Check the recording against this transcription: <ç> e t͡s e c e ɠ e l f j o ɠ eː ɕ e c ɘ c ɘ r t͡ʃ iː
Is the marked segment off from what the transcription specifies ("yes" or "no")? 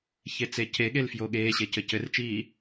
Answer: no